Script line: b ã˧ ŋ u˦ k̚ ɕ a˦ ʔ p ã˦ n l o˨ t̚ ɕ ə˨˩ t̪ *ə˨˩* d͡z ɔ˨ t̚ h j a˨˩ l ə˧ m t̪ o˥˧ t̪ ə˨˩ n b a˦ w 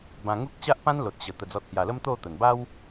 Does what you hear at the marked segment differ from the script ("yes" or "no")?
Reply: no